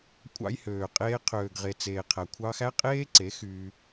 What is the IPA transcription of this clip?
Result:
kʷʼɑ̰˧jhøː˨qʼeː˧ qʰøː˨ɡʁe˨t͡seː˨qʰæ˨ kʷʰɑː˧xæ˦qʼeː˦ǀe˨˦ xyː˧

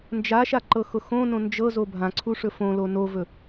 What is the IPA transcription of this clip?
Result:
nd͡ʒaʃaǃɤxʊ xõnõ nd͡ʒɤzo bʱãǀʰuʂɵ fõlo novɵ

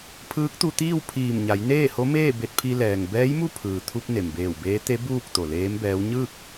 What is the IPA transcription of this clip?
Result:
pʰɯː˧˥k̚t̪u˧t̪iː˥˨w pʰiː˧˩mɲa˩˧j neː˥˨ho˧˥meː˥˨ be˧t̚pʰi˧lɛː˩ŋ bɛː˧˥jmu˥˨pʰɯː˩t̪ʰu˧p̚ ne˩mbeː˧˩wbeː˧˥ t̪e˧˥ buː˥˨k̚ t̪o˩leː˧˥mbɛː˧˥w ɲɯː˥˨k̚

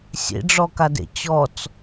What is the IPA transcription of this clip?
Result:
sʲḛɖ͡ʐɔkadḛ t͡ɕɔt͡s

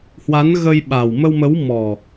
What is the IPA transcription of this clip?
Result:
hwa˨˦n ɣə˧j ɓa˨˩w mə˧wmə˨˦wmɔ˨˩

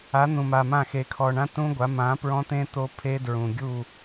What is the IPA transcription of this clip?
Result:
a˨˥n̪ũ˨ma˨mã˦˨ xe˨kʰɔ˨ɳã˦˥ tũ˦˥ɡʷa˨˥ mã˨˥ pɹɔ̃˦˥t̪ẽ˦˥ t̪o˦˥pʰe˦˥dɹũ˨ ɡʲu˦˨

